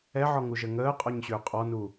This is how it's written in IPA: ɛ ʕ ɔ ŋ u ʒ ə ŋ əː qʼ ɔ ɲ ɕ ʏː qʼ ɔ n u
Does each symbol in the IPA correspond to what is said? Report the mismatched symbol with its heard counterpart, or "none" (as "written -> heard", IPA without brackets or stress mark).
none